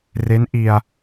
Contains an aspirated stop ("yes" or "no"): no